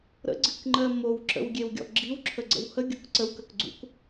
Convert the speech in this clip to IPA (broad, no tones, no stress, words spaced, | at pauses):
ɾə̰ɡ͡ǀɨkŋ͡ǃɜ mowǁə̰wɡʲewɡʲɔ̰ ɡ͡ǁiwǁʰəɡ͡ǀə̰w həɡʲʊk ǀəwkəkɡ͡ǀṵk